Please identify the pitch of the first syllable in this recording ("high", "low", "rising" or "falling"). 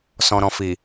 low